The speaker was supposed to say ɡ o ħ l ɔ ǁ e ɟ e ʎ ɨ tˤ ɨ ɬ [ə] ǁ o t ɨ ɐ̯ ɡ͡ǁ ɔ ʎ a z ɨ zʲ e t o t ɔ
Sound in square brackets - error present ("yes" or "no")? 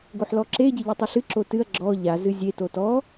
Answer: yes